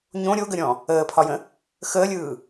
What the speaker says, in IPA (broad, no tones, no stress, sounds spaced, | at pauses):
ɲ õ ɾʲ o ɡ ə ɾʲ ɔ̃ | əː pʰ ɒ j ə̃ | x əː lʲ ɯː